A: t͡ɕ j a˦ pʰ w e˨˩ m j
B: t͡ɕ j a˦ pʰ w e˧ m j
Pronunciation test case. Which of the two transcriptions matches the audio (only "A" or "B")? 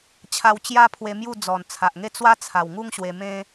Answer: B